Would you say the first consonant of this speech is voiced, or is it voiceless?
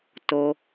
voiceless